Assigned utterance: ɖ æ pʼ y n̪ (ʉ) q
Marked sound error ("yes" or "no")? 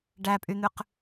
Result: no